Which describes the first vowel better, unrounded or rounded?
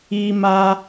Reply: unrounded